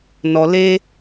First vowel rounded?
yes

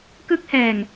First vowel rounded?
no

